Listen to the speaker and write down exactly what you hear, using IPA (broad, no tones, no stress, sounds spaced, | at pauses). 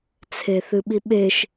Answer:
t͡sʰ e θ ɨ ɓ i ɓ e ʃ